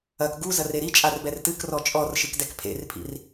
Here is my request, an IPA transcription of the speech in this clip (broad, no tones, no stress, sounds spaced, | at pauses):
ɐ k ɡ u z ɐ r e ɾ i t͡ʃʼ a r b ɛ r t ɨ k r ɔ t͡ʃʼ ɔ r ʃ ɨ k d ɛ k pʰ ḛ r pʰ ḭ r